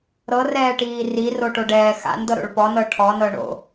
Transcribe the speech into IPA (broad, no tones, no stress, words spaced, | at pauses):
ɾɤrɛːʈiː riroʈoɖɛː xa̰ndɤɾo̰ɭ pɔnɤ ʈʰɔnɤ ɳo̰